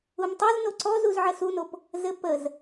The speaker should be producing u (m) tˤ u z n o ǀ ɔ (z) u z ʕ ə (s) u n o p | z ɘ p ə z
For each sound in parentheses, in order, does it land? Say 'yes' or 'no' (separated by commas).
yes, yes, yes